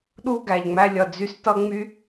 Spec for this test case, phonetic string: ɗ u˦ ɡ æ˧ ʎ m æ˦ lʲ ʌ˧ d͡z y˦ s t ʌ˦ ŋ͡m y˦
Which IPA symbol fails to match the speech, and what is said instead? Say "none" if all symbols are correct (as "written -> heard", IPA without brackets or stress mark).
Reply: m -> ŋ͡m